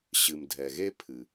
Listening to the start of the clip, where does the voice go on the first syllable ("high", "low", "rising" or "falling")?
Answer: low